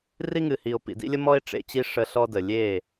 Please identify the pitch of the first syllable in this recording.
high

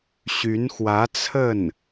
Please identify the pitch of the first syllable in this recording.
rising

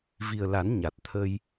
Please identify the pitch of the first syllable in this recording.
low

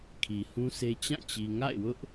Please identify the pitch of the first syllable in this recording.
low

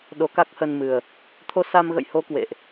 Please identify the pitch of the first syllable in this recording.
rising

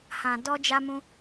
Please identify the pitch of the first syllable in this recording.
low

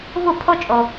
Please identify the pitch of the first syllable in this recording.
falling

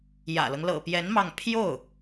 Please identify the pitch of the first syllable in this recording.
low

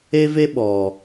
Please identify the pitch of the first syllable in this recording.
high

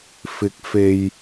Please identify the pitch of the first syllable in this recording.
rising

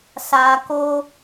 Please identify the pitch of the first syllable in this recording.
low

